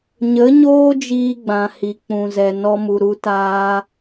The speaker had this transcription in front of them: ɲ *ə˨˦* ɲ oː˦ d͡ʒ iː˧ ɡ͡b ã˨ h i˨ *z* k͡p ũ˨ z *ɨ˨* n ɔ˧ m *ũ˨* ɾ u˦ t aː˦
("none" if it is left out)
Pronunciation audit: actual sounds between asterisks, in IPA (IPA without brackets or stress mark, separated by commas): ə˨˦, none, ɛ˨, u˨